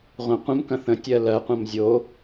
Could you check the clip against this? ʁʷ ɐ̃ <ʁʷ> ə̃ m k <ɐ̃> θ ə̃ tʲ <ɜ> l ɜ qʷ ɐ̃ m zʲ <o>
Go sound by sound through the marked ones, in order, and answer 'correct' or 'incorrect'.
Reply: incorrect: qʷ, correct, correct, correct

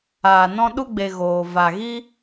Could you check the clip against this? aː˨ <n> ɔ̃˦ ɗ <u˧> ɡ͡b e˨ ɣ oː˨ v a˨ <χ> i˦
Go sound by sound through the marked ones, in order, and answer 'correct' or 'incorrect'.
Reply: correct, incorrect: u˦, incorrect: ɣ

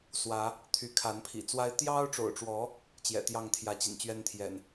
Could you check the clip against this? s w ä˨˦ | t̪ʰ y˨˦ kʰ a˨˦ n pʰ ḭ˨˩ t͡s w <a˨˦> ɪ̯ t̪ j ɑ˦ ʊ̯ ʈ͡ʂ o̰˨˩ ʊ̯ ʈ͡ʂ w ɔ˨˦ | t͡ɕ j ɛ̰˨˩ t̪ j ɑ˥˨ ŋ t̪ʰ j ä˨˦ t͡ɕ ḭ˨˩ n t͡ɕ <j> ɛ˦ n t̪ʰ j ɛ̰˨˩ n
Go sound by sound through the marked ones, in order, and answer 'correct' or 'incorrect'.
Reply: incorrect: a˦, incorrect: ɥ

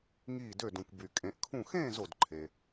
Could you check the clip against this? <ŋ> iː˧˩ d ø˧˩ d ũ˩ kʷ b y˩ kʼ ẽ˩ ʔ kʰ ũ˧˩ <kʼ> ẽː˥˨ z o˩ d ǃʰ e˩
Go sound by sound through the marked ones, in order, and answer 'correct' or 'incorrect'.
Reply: correct, incorrect: x

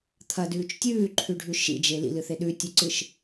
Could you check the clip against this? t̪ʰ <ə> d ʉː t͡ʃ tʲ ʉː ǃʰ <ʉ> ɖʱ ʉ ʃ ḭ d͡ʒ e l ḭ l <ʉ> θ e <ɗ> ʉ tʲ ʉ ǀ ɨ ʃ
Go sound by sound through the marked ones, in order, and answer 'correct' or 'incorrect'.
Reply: incorrect: ɐ, correct, incorrect: ɨ, correct

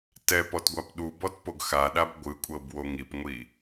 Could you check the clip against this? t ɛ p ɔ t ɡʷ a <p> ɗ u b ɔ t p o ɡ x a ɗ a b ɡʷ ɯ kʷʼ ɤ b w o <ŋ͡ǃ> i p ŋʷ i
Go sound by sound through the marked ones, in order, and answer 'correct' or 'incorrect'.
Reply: correct, incorrect: ŋ

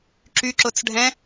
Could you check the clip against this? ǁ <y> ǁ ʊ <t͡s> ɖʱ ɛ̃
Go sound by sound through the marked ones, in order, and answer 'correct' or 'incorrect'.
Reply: correct, correct

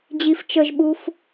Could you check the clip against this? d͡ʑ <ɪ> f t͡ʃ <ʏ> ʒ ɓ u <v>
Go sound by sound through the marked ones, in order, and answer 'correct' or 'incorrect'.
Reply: incorrect: i, incorrect: ə, incorrect: f

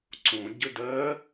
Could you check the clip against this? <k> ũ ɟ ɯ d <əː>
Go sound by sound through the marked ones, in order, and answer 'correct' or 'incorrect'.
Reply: incorrect: ǀ, correct

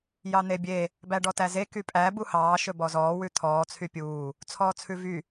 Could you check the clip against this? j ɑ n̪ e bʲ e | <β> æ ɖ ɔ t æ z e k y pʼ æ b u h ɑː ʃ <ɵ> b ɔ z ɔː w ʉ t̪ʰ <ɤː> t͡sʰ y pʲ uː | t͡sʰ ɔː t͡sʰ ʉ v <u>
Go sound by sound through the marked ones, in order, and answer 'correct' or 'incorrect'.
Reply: incorrect: b, correct, incorrect: ɔː, incorrect: y

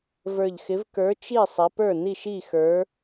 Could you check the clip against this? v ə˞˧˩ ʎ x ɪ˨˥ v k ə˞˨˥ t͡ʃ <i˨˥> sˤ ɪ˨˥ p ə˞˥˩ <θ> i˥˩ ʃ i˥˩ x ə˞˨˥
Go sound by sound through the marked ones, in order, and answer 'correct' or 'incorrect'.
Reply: incorrect: i˥˩, incorrect: n

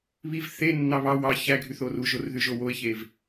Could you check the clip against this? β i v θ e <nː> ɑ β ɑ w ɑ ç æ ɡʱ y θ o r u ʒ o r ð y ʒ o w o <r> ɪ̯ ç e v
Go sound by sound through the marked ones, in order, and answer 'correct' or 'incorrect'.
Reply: correct, incorrect: none

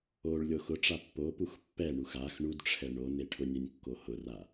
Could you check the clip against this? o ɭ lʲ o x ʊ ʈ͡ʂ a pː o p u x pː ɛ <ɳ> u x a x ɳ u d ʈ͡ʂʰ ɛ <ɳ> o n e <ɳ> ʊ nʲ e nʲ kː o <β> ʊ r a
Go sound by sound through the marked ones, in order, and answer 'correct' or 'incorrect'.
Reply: correct, correct, incorrect: ʈʰ, incorrect: h

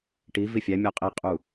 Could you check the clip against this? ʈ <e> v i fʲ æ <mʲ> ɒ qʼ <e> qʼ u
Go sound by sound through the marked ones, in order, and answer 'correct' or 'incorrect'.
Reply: incorrect: i, correct, incorrect: i

